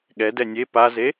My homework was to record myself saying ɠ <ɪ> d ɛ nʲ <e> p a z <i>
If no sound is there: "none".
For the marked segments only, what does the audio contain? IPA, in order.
ɛ, e, e

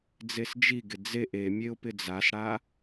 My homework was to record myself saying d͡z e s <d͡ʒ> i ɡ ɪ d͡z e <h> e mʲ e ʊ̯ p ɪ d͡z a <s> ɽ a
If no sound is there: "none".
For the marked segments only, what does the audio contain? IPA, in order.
d͡ʒ, ʔ, s

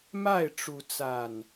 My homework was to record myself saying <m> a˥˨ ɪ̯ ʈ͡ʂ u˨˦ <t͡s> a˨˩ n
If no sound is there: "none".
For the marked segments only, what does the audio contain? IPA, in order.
m, t͡s

